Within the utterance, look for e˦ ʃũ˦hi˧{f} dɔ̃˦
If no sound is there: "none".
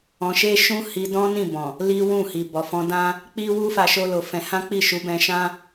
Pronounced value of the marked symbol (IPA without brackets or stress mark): none